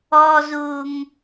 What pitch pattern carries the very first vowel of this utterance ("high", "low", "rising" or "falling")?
low